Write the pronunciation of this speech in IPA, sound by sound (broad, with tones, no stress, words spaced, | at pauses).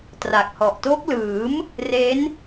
tra˨˩k̚hɔ˨˩ʔ to˦˥k̚lɯː˩˦m | re˦˥n